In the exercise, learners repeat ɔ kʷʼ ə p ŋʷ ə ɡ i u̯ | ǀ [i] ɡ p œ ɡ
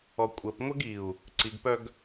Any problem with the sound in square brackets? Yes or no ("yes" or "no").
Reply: no